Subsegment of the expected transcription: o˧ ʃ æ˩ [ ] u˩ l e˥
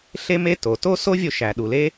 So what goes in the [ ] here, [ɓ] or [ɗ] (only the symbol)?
ɗ